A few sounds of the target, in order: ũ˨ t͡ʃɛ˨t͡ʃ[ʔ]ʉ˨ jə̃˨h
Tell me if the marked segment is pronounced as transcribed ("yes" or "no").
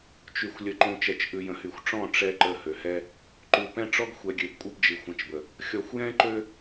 yes